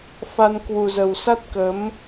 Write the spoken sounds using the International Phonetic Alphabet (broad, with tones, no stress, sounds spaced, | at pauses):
f a˧ n k w u˨˩ z ə˨˩ w s a˦˥ t̚ k ə˨˦ m